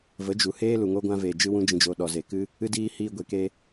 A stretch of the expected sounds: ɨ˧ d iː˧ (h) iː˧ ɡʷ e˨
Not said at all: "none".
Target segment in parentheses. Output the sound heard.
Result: h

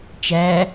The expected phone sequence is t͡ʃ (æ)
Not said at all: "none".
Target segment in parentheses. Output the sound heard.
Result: æ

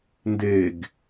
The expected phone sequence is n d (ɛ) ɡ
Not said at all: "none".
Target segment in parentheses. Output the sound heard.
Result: e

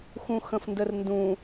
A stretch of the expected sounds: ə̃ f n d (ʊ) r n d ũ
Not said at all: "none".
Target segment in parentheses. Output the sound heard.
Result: ə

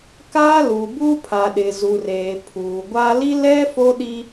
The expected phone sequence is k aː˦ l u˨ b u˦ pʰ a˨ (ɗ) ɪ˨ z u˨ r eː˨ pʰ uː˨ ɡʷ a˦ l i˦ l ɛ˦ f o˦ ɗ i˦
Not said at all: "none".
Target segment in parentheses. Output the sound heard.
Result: ɗ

